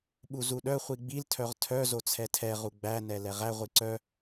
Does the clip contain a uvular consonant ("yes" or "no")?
yes